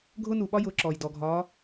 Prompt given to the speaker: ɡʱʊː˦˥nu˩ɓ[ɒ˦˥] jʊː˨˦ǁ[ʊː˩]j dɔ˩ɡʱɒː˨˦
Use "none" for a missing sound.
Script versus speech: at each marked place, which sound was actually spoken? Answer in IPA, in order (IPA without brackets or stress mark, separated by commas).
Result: ɒ˦˥, ɔː˩